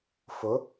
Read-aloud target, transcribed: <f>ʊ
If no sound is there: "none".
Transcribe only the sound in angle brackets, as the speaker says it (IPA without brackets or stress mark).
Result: f